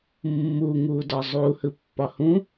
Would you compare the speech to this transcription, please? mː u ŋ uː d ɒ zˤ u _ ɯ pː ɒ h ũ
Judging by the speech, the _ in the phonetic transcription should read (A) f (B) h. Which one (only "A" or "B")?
B